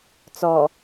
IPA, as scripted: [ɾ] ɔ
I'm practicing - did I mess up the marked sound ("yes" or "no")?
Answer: yes